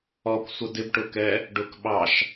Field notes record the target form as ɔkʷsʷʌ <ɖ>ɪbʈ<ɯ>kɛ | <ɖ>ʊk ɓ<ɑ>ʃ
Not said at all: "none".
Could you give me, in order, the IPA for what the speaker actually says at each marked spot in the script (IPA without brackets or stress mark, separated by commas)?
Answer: d, ʊ, ɖ, ɑ